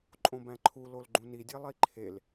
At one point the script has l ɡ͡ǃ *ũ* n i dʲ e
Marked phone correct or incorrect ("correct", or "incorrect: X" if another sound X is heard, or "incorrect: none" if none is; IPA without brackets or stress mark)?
correct